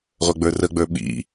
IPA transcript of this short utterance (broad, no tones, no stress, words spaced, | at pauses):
ʁʷə˞ɡ͡bə˞rəɡ͡bə˞ ɓḭ